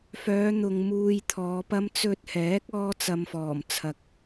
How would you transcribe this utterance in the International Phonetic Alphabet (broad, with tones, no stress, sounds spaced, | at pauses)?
f œː˨˧ n̪ ʊ˨ ŋ m uː˧ j t̪ʰ ɔː˨˧ p ɐ˥ m t͡s ɵ˧ t̚ h ɛː˨˥ k̚ ɔː˥ t͡s ɐ˧ m f ɔː˨˩ m t͡sʰ ɐ˨ k̚